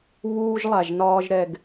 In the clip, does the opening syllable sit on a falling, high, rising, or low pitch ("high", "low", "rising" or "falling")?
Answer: high